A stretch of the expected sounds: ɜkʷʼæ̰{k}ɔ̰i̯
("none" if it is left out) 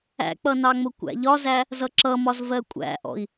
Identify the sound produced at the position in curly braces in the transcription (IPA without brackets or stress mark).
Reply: ʔ